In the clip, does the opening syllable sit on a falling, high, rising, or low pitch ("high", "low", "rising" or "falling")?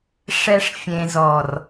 low